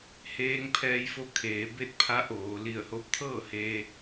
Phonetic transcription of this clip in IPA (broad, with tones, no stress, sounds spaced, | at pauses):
h eː˧ ŋ pʰ ɛː˧ j f o˧ kʰ eː˩˧ b e˥˨ t̚ pʰ a˧˥ ʔ oː˩˧ l i˧˩ ə̯ h o˧˥ p̚ t̪ʰ ɤː˥˨ h eː˧